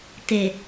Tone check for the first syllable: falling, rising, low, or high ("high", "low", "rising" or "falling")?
low